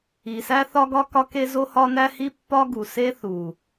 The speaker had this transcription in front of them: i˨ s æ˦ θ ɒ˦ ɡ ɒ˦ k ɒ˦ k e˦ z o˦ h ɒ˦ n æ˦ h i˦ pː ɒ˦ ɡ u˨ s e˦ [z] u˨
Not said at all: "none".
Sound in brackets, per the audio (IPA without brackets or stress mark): θ